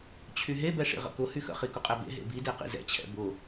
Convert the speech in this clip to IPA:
t͡ɕʰ y ɦ e b ɛ ʂ ḭ ʁ ə̰ k ʊ h y x ə̰ χ i k ʊ qʼ ɛ b ḛ ɦ ḛ b i d e q ḭ z ɛ̰ t͡ɕʰ ɛ̰ b ʊ

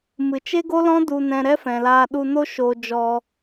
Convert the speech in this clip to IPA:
m ɨ˨ t͡ʃ e˦ ɡ o˦ l ɔ̃˦ d u˧ n ɛ̃˧ ɾ ɛ˦ f ɛ̃˨ l aː˧ ɗ u˧ n o˦ ʃ oː˧ d͡ʒ ɔ˧

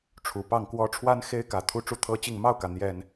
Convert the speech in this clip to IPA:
ʈ͡ʂʰ u˨˩ p ɑ˥˨ ŋ k w ɔ˦ ʈ͡ʂʰ w a˦ n x e˦ ɪ̯ k ä˨˩ t̪ʰ u˦ ʈ͡ʂ u˦ t̪ʰ ɤ˦ t͡ɕ i˥˨ ŋ m ɑ˥˨ ʊ̯ k ä˩ n̪ j ɛ˨˩ n

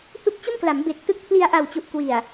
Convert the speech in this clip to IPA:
h u˦˥ k̚ t͡ɕ o˥˩ m k l a˩˦ m b e˨˩ k̚ t ɯ˦˥ k̚ pʰ l i˧ a̯ ʔ a˨˩ w t͡ɕ u˨˩ ʔ k w i˨˩ a̯

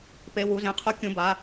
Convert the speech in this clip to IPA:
p e˩˧˩ w u˩˧˩ z ẽ˩˧˩ qʰ u˨˦ kʲ ũ˩˧˩ b a˩˧˩

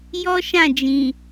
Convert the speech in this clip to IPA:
j ɔ˦ ʃ ã˦˨ d͡ʒ ĩ˨

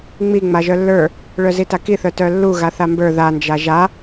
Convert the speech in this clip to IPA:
ŋ͡m i ŋ͡m a ʒ œ lː ə˞ | ɭ œ z i t a k i θ œ t œ lː u ɣ a θ a m b ə˞ ð a n d͡ʒ a ʒ a

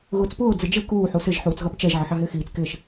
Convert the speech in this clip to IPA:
ɣ ʊː t͡s p ʊː d͡z ɪ d͡ʒ ɪ k uː ħ u s ɪ ʒ ħ uː t͡s ɣ ʌ p t͡ʃ ɛ ʒ ʕ ə ħ ɑ ɦ ɪː x iː t͡s k ɪː ʃ

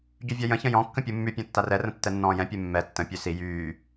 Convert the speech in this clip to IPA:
ɟ y vʲ a j ə̃ ç ə̃ j ɔ̃ kː ə̃ pʲ u mː y pʲ ɔ̃ tː a r ɛ r ə̃ tː ɛ nː ɔ̃ː j ɛ̃ pʲ ɛ mː ɛ tː ə̃ pʲ ø s i j yː

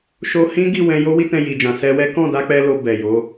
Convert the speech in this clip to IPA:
ʃ o˧ h ĩ˦ ɡ i˦˨ w ɛ̃˧ j o˦ w i˦ t ɛ̃˧ j i˨ d͡ʒ ã˨ s ɛ˧ w ɛ˦ k ɔ̃˦˨ d a˨˦ k͡p ɛ˦ l o˧ b ɛ˨ j o˨˦

